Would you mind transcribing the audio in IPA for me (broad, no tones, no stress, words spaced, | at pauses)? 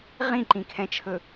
ʁĩǃĩkʰɛ̃t͡ʃʰɵ